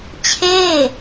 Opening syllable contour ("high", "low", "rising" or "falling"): falling